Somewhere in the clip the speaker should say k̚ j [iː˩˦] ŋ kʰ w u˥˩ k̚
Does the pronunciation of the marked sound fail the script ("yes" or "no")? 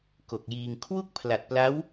yes